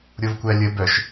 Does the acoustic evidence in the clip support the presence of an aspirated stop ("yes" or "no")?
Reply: no